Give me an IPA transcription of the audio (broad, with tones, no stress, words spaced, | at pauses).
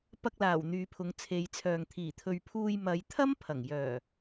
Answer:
pɐ˧k̚laː˨˩w n̪yː˨˧pʰʊ˨˧ŋt͡sʰe˨˧jt͡sʰœː˨ŋ t̪ʰiː˨˩t̪ʰɵ˨ɥpʰuː˧j mɐ˨˧jt̪ʰɐ˥mpʰɐ˨˩ŋ jœː˨˩